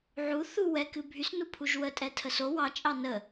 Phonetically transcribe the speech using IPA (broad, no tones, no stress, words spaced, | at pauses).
ʕu θu wɛkɨ bʱysnupʰuʒ wətʼɛ tʰəso wɑ t͡ʃʼɑnə